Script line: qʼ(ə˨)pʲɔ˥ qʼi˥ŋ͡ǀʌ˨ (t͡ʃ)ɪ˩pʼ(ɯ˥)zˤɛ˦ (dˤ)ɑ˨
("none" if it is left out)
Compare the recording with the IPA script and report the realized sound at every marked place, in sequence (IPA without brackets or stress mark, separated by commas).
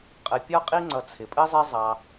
ə˨, t͡sʰ, ə˥, zˤ